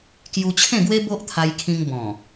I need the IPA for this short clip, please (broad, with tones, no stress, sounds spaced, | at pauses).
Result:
k j u˧ t͡ɕʰ ẽ˥˧ ɡ w e˦ b o˦ ʔ t̪ʰ a˧ j kʰ ĩ˧ ŋ b ɔ̃˨˩